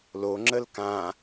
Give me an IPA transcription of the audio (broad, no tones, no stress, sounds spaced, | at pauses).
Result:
l o ŋ͡ǁ ə l k ã